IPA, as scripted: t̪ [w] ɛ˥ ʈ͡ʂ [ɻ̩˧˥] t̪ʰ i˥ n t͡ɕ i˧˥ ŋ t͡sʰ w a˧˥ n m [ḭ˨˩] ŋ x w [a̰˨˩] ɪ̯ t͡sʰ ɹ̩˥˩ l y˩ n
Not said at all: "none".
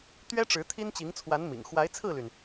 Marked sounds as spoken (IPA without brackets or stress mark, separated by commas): ɥ, ɻ̩˧˥, ḭ˨˩, a˧˥